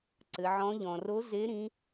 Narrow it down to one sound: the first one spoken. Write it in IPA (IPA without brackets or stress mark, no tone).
ǀ